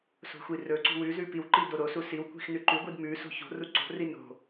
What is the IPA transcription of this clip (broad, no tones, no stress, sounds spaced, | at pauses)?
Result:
s o̤ xʷ i r ɵ ǀ ṳ w ʉ z ʉ p i w ǃ i d o ɾ o s u s i w kʷ i̤ x n ʉ ǃ ʉ ɡʷ i d m ʉ s o̤ ç o̤ r u ǀ o̤ r i n o̤